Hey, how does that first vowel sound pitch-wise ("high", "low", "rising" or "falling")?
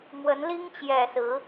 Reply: rising